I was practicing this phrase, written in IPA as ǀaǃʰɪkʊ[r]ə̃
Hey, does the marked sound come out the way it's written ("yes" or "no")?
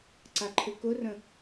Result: yes